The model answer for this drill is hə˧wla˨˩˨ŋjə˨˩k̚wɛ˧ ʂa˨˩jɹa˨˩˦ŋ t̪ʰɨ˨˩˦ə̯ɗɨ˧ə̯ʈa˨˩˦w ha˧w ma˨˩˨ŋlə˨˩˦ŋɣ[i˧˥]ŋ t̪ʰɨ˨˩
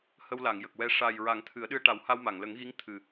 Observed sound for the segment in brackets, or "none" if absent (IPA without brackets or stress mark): i˧˥